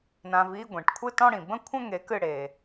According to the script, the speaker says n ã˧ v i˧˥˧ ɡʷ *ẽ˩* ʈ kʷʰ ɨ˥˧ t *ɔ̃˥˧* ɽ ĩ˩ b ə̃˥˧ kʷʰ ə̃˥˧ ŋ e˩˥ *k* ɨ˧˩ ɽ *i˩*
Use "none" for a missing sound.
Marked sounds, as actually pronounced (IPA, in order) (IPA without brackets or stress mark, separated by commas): ẽ˩, ɔ̃˥˧, k, e˩